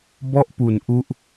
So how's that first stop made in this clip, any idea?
plain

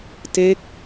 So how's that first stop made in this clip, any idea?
plain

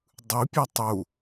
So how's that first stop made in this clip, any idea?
plain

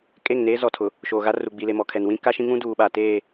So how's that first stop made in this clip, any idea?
ejective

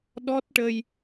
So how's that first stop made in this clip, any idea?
implosive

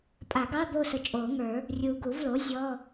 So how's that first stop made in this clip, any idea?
ejective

